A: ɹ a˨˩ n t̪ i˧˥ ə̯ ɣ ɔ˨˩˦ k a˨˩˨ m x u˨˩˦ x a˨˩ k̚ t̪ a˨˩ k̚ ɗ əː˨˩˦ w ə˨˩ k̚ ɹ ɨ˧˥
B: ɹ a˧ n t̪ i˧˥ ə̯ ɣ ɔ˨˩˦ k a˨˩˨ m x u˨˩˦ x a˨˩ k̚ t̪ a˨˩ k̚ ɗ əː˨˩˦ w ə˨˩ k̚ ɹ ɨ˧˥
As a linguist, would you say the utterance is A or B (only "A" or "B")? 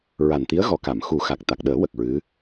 A